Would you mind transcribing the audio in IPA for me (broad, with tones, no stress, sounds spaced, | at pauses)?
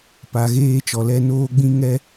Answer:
p a˨ ɣ eː˧ t͡ʃ ɔ˨ l ɛ˧ n oː˦ ɡ͡b ĩ˦ ŋ ɛ˦